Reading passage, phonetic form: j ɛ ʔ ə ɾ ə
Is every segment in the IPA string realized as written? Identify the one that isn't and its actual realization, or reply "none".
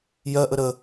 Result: ɛ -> ɜ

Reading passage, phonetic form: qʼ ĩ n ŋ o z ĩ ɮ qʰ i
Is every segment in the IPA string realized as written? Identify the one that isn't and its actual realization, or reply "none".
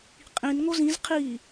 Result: ɮ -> z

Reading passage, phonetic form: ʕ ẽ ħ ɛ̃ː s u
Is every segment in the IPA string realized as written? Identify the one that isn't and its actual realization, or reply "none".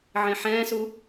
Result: none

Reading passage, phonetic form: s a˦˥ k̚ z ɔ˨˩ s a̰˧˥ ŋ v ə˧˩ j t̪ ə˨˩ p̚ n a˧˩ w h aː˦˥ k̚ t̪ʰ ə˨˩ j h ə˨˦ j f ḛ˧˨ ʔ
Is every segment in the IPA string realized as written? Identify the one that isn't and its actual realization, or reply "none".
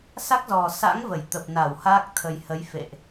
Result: none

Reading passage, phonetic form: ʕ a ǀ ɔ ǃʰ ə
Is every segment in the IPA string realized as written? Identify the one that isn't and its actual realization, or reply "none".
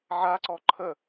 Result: none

